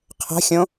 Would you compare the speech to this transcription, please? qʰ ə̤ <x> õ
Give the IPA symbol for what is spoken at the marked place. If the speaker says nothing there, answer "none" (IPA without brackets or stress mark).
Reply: xʲ